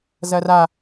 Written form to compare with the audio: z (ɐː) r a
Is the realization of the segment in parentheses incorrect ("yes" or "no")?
yes